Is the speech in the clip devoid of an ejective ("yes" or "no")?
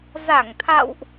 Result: yes